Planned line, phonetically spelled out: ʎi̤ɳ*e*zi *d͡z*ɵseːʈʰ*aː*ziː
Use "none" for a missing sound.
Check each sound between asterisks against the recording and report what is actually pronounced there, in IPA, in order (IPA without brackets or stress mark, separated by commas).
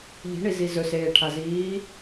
i, z, a